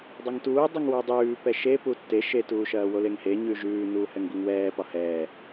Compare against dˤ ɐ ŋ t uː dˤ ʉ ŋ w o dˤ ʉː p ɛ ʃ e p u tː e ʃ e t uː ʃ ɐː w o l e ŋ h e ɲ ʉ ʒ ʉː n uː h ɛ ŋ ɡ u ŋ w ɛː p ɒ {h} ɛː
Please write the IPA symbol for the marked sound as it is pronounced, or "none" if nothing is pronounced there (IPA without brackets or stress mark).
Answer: h